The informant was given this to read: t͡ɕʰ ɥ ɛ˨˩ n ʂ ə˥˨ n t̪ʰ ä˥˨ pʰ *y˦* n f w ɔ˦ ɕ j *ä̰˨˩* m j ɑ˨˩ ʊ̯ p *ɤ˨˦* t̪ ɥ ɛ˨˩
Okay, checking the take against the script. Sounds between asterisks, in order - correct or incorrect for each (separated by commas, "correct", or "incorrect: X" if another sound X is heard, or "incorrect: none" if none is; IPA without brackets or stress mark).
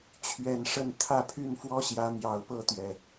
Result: incorrect: y˥˨, incorrect: ä˨˦, incorrect: ɤ˥˨